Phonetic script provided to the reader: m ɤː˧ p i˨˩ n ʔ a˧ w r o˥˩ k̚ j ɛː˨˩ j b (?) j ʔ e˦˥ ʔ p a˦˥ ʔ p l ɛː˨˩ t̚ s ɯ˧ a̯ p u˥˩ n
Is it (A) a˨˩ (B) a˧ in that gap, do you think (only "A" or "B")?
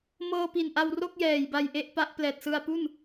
B